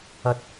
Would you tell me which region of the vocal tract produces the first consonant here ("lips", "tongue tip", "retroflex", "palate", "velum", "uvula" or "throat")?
tongue tip